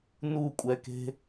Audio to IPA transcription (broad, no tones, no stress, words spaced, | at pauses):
nukʷʼɛke̤